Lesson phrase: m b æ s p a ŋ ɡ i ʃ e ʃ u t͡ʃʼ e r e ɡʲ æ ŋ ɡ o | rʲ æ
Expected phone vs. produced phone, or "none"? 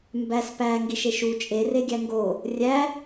a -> æ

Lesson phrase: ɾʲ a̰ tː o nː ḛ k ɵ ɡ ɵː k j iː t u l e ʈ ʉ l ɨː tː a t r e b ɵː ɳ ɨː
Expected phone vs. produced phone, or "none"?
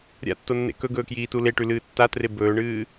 none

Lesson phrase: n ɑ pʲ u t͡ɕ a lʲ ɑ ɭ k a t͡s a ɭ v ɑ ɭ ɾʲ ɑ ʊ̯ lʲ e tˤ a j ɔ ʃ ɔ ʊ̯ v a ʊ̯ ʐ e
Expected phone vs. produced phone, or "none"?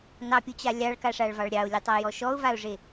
t͡s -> ʂ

